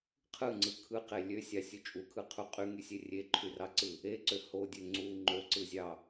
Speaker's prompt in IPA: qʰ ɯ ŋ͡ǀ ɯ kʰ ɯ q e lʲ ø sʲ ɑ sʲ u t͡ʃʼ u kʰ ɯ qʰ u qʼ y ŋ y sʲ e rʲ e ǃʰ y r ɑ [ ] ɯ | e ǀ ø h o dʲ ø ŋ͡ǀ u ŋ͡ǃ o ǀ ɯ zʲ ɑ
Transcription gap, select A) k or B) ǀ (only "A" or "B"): B